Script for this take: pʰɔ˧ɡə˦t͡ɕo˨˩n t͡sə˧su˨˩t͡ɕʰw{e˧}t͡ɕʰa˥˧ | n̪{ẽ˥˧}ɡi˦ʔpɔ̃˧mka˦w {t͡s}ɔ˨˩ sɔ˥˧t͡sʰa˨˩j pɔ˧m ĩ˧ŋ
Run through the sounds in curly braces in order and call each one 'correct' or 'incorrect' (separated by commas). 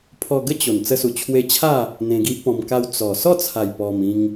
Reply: correct, incorrect, correct